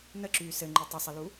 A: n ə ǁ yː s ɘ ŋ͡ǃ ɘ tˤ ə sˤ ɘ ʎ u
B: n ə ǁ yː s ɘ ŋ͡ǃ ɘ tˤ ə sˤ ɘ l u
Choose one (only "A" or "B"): B